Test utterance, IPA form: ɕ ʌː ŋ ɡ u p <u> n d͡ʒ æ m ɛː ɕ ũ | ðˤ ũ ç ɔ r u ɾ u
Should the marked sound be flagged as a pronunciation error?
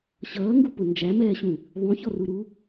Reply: yes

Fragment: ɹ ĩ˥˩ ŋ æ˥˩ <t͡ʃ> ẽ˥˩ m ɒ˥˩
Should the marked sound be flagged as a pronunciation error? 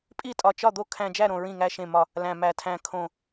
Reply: yes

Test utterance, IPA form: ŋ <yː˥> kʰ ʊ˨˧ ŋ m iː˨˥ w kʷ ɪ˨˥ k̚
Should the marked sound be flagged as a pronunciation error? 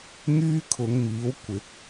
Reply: no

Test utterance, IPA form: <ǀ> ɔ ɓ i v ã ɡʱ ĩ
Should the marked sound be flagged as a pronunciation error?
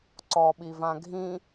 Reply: no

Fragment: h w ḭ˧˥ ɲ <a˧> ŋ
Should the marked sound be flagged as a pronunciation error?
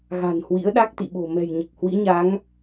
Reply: yes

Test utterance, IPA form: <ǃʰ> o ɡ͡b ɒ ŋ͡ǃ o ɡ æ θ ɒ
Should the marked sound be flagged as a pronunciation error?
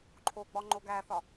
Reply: no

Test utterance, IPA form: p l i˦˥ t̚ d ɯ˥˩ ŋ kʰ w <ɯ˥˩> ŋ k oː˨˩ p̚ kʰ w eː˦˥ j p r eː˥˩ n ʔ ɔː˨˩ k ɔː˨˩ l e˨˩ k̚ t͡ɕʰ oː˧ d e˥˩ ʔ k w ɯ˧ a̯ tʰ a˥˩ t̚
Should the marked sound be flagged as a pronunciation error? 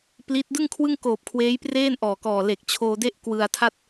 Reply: no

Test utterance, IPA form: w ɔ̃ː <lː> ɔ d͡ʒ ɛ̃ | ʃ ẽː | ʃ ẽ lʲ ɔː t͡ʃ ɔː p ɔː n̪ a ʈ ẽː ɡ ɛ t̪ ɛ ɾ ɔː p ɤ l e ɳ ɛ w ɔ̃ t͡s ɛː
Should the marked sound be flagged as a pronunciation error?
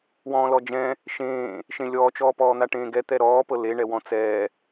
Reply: yes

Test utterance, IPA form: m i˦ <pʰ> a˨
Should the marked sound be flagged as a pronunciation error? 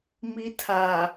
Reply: yes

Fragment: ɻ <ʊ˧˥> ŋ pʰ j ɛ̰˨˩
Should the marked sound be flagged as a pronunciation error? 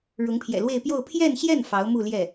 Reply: no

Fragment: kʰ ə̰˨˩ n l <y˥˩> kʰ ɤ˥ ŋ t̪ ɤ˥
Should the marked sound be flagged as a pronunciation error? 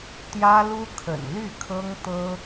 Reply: no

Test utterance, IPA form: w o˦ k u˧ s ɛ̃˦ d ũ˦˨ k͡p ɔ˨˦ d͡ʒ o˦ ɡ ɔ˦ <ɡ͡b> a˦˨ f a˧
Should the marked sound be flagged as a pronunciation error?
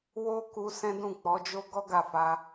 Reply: yes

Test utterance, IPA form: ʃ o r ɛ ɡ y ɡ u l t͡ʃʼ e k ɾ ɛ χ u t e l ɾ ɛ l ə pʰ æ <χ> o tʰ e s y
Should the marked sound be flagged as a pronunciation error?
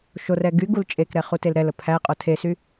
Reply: yes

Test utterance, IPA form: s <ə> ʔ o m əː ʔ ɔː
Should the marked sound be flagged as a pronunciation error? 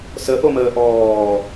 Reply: no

